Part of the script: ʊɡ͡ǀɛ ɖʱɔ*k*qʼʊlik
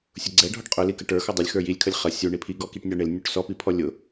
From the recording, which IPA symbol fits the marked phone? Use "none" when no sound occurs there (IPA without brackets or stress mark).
ʈ